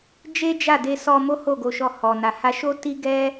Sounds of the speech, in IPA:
d͡ʒ e˦ d͡ʒ a˦˨ d e˧ s ɔ˧ m o˦ h o˦˨ ɡ o˧ ʃ ɔ˧ h ɔ˨ n a˨ h a˧ ʃ o˦ t i˦ ɡ ɛ˦

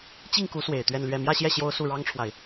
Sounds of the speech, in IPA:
t͡ɕ i˥˩ ŋ k u˧˥ s w e˨˩ ɪ̯ t̪ ɥ ɛ˥˧ n l ɥ ɛ˥˧ m j ä˥˧ ɕ j ɛ˥˩ ɕ j o˥ ʊ̯ s u˥˩ ɻ ɑ˥ ŋ ʈ͡ʂʰ w a˨ ɪ̯

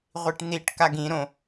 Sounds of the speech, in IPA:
ʁʷ i ʈ n̪ i ʈ k a ɡ ĩ ɾ õ

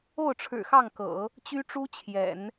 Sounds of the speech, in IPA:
o˥˩ ʊ̯ ʈ͡ʂʰ ɻ̩˨˩ x ɑ˥˩ ŋ k ɤ̰˨˩˦ | t͡ɕ y˥ ʈ͡ʂ u˥ t͡ɕʰ j ɛ̰˨˩˦ n

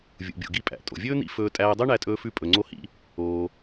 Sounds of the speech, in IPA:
vʲ ṵ˩ bʲ o̰˩ ɡ i˧ pʼ æ̰˩ tʼ o̰˩ vʲ ɵː˥ n̪ ḭ˧ f ɵː˧ tʼ æː˧ dˤ ø˥ ɳ æ˧ tʼ ɵː˧ f ʉ˧ pʼ ɵ˩ ŋ͡ǀ o˧ h ḭ˧ | oː˩

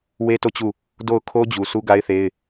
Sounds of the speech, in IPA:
w e˦ t o˦˨ t͡ɕ u˦˨ | d o˦˨ ʊ̯ kʰ o˦ d͡ʑ u˨ s u˦ ɡ a˦ ɪ̯ θ e˦ ɪ̯

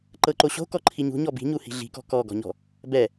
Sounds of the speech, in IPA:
ǃ ɤ ǃ o ɕ o̤ k ɔ ǃʰ i ɲ ṳ ɲ ɔ b i̤ ɲ u h i̤ ɮ i̤ k ɔ̤ k ɔ ɡ ɔ̤ ɲ ɔ̤ | b ɛ

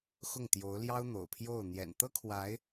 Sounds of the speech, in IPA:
x ʊ˥˩ ŋ t̪ j o˧˥ ʊ̯ l j ɑ˥ ʊ̯ n̪ o̰˨˩ ʊ̯ pʰ j o˥˩ ʊ̯ n̪ j ɛ̰˨˩ n t̪ ɤ˥ kʰ w a˧˥ ɪ̯

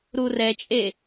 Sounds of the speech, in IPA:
ɾ u r ɛ t͡ʃʼ e

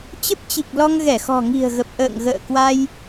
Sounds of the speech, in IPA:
t͡ɕ ə˦˥ p̚ t͡ɕ i˨˩ k̚ l ɔ˧ ŋ ɣ ɛ˧˩ x ɔ̤˨˩ ŋ i̤˨˩ ə̯ ɣ ə˨˩ p̚ ʔ ə̰ː˧˨ ŋ ɣ ə̰ː˧˨ k w a˧ j

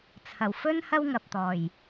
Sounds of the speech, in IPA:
t͡sʰ ɐ˨˩ w f ɵ˥ n h ɐ˥ w ŋ ɐ˨ p̚ t̪ ɔː˨˩ j

